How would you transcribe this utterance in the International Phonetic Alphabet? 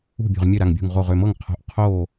ṳ˥˩ bʲ o̤˧˩ ʁ mʲ ø˥˩ ɾ a˧˩ ŋ bʲ ṳ˧˩ ŋ ʁ o˧˩ ʁ ø˧˩ m ɤ˥˩ ŋ qʰ o̤˧˩ ʔ qʰ o˥˩

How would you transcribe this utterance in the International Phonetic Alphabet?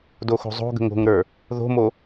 d o x o̤ zˤ o̤ ɡ ə̤ ŋ o̤ ŋ ɾ ə˞ | ð o̤ m o

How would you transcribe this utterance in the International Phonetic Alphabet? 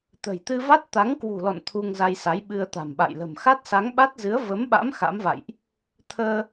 t̪ ə̤˨˩ j t̪ ɨ˧ v a˦˥ t̚ t̪ a˨˦ ŋ k w ṳ˨˩ l ɔ̰˧˨ n t̪ʰ u˧ ŋ z a˧ j s a˨˦ j ɓ ɨ˧ ə̯ t̪ a̤˨˩ m ɓ a̰˧˨ j l ə̤˨˩ m x a˦˥ t̚ s a˨˦ ŋ ɓ a˦˥ t̚ z ɨ˨˦ ə̯ v ə˨˦ m ɓ a̰˧˥ m x a̰˧˥ m v a̰˧˨ j ʔ | t̪ʰ əː˧

